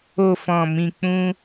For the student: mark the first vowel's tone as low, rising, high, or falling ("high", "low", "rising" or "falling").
low